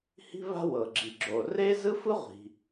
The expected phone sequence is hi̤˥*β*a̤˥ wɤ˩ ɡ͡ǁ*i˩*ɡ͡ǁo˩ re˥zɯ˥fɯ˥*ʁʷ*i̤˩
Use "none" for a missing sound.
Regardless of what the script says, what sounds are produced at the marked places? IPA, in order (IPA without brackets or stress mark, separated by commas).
β, i˩, ʁʷ